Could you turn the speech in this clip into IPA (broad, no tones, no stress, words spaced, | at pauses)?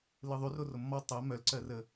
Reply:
lɯðˤyro romːɔ tˤɜ mœlǀɜrə